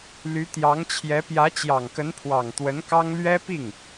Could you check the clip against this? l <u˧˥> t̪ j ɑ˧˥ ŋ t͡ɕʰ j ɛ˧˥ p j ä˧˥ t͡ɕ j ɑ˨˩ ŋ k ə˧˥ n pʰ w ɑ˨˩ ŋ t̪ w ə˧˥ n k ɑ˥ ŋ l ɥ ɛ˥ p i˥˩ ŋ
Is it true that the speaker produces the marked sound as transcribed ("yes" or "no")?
no